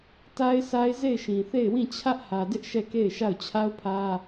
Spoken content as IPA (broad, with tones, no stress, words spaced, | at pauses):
ta˦ɪ̯sa˦ɪ̯ ze˦˨ɪ̯ʃĩ˨θe˦˨ɪ̯ wĩ˦˨ t͡ɕʰä˦ʔhä˨dɪ˦ʔ ʃɛ˦˨ke˦˨ɪ̯ʃa˦˨ʊ̯ t͡ɕʰa˦ʊ̯pʰä˦